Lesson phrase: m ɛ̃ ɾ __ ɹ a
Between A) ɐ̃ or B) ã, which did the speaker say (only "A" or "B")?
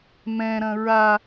A